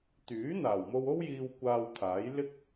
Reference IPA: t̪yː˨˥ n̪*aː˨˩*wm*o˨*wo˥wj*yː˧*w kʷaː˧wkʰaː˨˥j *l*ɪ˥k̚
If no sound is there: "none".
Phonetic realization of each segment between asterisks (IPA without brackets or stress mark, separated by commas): aː˨˩, o˧, iː˧, l